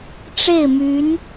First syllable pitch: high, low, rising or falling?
falling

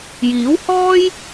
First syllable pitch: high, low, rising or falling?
rising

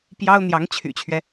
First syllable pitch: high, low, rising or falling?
high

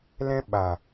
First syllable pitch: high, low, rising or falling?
high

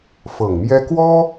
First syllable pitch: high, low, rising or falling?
low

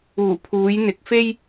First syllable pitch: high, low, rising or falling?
low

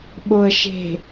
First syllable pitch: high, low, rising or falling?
low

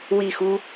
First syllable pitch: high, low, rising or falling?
falling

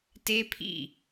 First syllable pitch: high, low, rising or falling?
high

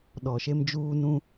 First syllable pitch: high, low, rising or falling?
low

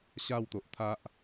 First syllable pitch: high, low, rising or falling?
falling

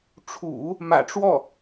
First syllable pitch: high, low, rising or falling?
low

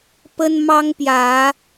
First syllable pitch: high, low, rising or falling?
high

